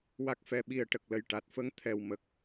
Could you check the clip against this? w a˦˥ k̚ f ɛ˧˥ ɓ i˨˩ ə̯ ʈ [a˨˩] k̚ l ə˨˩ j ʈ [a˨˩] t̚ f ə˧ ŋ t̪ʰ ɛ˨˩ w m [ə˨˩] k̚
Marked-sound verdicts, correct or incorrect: incorrect: ə˨˩, correct, correct

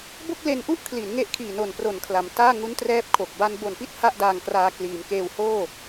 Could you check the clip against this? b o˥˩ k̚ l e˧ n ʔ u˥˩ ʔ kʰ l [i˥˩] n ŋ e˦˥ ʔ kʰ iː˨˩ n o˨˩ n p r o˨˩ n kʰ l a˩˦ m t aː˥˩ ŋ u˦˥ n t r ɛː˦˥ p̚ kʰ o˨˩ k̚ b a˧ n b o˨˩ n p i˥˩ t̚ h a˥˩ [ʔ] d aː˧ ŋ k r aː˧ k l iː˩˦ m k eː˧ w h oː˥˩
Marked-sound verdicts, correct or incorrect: incorrect: i˩˦, correct

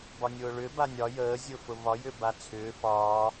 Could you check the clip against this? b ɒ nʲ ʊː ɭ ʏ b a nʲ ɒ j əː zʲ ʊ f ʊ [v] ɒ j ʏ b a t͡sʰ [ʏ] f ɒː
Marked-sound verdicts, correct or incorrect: correct, incorrect: ʏː

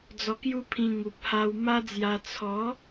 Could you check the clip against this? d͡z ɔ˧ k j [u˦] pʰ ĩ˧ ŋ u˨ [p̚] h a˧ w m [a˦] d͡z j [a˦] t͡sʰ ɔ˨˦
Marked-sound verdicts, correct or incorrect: correct, correct, correct, incorrect: a˧

